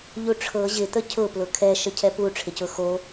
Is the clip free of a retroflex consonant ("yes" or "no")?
no